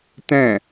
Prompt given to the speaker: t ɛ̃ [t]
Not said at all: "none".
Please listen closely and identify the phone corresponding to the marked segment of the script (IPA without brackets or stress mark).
none